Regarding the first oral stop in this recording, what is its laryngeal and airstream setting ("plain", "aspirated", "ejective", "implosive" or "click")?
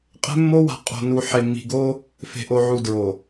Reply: ejective